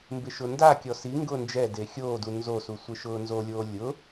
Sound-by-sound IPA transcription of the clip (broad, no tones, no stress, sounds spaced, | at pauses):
m b ɪ ʃ ʊ n d a kʲ ɔ s i ŋ ɡ ʊː n d͡ʒ ɛ d e xʲ oː d u n z o s u sʷ ɪ ʃ ʊː n z o lʲ oː lʲ ʊ